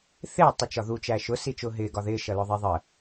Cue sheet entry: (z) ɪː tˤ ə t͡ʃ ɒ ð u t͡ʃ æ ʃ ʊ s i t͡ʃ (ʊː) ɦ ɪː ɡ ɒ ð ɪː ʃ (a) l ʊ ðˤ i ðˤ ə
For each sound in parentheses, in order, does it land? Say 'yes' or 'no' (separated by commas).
no, yes, no